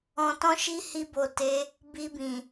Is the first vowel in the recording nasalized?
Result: yes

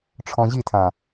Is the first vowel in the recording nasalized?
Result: yes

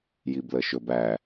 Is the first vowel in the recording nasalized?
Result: no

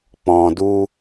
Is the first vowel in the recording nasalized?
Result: yes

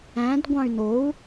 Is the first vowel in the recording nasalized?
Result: yes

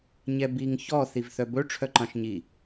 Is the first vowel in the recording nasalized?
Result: no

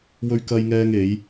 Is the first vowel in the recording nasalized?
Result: no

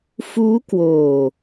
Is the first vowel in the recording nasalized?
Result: no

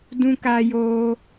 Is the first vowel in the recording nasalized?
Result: yes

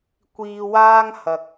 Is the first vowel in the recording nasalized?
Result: no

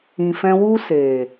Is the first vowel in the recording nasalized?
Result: yes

